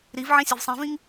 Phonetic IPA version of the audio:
ɾ i v ʕ ĩ sʲ e v sˤ ẽ v ĩ ŋ

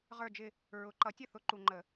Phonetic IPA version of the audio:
ʁ ə˞˥˧ d͡ʒ ɪ˥˧ | ɹ ʊ˨˩˦ ǃ ʌ˨˥ tʲ ə˥˩ θ ʊ˨˥ ǃ u˨ ŋ͡ǃ ə˨˩˦

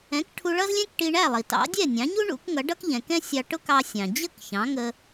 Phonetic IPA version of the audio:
ɛ̃˩˥ k ʈʰ u˧ ɭ ʌ˥ z lʲ ɛ̃˥ k ʈ i˧ ɳ æ˥˩ lˠ i˩ t ɑ̰˩˥ dʲ ɛ˥˩ nʲ ɑ̃˩˥ ɲ u˥ ɳ ṵ˩˥ k ŋ ʌ˩˥ ɖ ʌ˥ k ʎ ɛ̃˩ k ɛ̃˥ sʲ ɑ˧ ʈ ʊ˥ k ɑ˧ sʲ ɑ̃˩ d͡ʑ ə˥˩ k ç ɑ̃˩˥ ŋ ə˧

